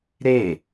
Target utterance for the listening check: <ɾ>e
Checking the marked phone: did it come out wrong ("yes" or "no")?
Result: no